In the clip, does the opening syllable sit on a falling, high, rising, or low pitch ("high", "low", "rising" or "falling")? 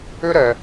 high